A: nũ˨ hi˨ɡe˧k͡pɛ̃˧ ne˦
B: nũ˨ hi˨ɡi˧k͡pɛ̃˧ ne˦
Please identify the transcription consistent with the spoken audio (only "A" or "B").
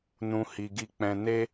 B